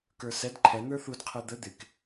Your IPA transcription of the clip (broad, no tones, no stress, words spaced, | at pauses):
kə˞sɛd ǃʰɛ n̪ə˞θud qʰɛd̪ə d̪ɪk